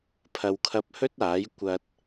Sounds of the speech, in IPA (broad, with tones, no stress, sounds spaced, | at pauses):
pʰ ɐ˨ w kʰ ɐ˧ p̚ h ɵ˥ t̚ aː˨˥ j kʷ ɐ˧ t̚